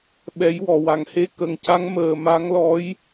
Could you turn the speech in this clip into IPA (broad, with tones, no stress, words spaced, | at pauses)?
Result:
ɓɛ˨˩˦jwɔ˨˩˨wa˨˩˨ŋhe˧˥ kə˨˩ŋca˧˥ŋməː˨˩ ma˧˥ŋlɔ˧˥j